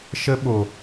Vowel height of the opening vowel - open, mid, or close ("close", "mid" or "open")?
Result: mid